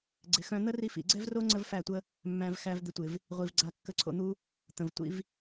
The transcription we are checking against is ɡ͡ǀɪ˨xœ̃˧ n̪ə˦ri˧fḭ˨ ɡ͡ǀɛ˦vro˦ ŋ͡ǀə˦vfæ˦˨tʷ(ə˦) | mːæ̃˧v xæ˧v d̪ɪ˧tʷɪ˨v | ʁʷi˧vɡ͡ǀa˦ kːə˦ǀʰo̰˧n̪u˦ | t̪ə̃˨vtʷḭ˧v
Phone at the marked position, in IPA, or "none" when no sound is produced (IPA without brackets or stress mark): ə˦